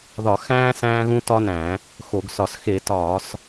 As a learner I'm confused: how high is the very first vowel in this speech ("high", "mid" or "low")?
low